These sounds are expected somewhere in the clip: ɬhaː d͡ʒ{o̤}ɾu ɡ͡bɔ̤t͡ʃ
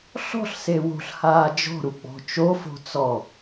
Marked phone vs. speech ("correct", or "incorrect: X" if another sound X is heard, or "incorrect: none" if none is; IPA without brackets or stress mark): incorrect: ɔ̤